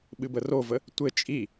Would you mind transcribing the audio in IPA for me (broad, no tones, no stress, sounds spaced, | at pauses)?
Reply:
ɓ ɨ b ə r o v ə | tʷ ɘ t͡ʃʼ i